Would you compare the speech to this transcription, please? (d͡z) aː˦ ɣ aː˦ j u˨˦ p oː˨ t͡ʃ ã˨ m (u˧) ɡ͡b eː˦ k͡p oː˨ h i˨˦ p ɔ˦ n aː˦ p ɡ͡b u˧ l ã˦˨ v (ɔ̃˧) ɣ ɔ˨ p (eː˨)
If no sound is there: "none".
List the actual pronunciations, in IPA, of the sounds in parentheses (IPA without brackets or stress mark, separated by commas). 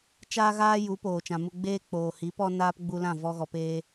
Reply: t͡ʃ, u˧, ɔ˧, eː˧